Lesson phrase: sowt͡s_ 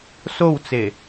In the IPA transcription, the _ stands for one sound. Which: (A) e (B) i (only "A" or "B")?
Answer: A